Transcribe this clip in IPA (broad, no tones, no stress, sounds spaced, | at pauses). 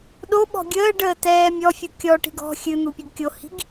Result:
ɗ o ɓ ɔ̤ ɡʲ əː ɖ əː t ɛː mʲ ɔ fʲ u kʲ ɔ ʈ i̤ ɡ ɔ̤ xʲ ɨ n̪ u pʲ ɨ ɡ kʲ o h i̤ ɡ